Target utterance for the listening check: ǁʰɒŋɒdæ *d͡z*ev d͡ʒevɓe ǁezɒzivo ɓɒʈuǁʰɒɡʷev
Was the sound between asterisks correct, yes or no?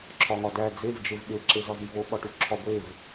yes